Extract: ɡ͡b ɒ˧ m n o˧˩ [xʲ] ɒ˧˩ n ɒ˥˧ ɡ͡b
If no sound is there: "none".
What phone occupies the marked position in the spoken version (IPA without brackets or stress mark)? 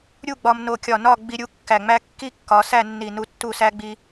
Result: kʲ